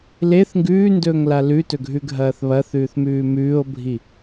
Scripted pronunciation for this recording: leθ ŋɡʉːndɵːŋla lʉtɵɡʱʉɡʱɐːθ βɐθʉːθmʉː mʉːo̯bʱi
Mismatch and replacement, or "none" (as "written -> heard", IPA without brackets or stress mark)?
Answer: none